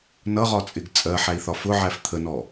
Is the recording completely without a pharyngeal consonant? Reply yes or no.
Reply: no